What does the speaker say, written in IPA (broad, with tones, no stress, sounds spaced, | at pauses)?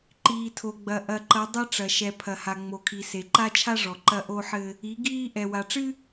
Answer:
ǃ iː˨ tʰ o˨ ɡ͡b ɐ˨ ʔ ɐ˨ ǃ ɐ˨˦ dˤ ɐ˦ ʈ͡ʂ ɐ˨ ʃ ɛ˨ pʰ ɐ˨ h a˨ ŋ͡m o˨ kʰ i˨ s e˨ ǃ a˦ t͡ʃʰ a˦ ʐ ɔ˨ ǃ ɐ˦ ʔ o˦ ħ ɘ˦ | i˨˦ ɡ iː˦ ʔ ɛ˨ w a˨ ʈ͡ʂ ɨ˦